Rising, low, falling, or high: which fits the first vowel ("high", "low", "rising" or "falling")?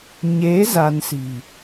rising